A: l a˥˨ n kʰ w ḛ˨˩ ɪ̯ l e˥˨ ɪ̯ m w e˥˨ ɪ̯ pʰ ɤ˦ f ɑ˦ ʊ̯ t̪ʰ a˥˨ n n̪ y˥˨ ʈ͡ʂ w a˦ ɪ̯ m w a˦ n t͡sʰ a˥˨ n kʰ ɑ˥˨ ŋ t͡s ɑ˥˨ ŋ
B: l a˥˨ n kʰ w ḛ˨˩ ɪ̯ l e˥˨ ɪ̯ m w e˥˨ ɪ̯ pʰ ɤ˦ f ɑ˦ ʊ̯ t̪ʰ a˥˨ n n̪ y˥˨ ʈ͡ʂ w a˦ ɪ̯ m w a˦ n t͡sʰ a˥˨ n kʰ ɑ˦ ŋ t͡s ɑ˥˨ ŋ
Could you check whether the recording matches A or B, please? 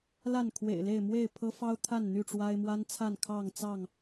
A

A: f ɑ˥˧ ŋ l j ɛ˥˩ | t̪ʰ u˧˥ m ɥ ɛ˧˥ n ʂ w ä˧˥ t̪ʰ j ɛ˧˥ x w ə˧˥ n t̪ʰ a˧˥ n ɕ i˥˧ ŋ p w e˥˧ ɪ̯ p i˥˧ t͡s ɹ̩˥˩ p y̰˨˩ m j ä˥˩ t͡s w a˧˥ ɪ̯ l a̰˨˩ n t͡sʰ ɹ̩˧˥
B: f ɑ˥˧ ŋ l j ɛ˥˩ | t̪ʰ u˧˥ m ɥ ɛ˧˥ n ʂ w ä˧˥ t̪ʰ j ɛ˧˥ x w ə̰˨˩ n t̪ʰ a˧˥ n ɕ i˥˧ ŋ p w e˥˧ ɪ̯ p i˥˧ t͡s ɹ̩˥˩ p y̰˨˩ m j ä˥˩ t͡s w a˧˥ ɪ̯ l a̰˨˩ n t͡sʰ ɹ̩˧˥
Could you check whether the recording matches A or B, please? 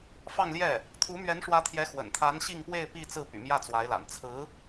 B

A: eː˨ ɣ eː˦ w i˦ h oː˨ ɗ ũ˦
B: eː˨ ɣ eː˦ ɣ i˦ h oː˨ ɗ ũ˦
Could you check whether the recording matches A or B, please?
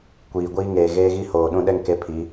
B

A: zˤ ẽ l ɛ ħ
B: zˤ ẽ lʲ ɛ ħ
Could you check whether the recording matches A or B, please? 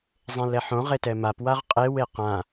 A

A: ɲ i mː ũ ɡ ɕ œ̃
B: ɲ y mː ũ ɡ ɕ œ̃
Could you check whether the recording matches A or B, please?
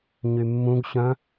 B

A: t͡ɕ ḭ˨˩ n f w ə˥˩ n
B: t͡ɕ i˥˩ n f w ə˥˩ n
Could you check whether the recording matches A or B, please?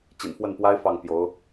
A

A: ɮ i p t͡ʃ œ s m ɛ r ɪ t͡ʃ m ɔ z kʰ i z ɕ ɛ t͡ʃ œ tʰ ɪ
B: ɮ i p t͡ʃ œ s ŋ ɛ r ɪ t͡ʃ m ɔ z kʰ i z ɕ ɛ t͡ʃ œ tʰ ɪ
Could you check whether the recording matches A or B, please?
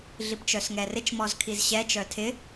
B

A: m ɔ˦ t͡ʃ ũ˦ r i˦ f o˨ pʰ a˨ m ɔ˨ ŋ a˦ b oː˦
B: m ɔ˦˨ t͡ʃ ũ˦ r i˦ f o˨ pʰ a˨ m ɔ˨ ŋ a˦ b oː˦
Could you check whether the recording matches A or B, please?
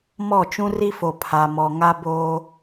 B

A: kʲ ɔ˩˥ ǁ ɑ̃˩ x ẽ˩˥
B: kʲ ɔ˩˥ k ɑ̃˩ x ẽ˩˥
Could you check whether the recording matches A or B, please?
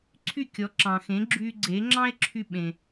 A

